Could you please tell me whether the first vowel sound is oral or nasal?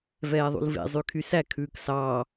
oral